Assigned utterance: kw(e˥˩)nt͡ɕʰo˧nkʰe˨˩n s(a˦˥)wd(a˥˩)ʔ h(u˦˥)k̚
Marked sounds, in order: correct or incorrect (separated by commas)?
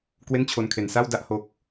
correct, incorrect, correct, incorrect